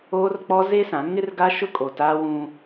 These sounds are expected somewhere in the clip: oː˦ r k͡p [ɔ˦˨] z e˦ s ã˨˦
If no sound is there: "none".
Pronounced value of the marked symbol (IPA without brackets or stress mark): ɔ˦